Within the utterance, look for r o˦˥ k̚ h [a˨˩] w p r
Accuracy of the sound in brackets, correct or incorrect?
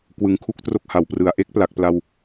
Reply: incorrect: a˩˦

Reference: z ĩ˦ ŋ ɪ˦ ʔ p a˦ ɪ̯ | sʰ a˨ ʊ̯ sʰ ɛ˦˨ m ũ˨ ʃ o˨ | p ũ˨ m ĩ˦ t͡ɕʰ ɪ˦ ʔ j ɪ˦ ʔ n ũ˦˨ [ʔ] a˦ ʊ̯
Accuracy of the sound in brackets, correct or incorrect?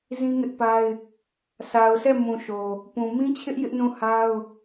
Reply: incorrect: h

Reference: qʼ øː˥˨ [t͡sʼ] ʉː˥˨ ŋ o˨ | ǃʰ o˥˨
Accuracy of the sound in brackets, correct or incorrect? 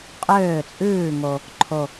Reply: correct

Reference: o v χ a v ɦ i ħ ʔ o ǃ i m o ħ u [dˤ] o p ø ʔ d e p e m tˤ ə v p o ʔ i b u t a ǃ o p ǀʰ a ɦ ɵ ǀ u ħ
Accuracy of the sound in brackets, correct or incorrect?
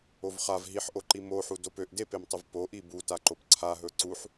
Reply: incorrect: d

